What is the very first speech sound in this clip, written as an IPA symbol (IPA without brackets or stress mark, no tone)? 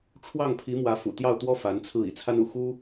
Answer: ʈ͡ʂʰ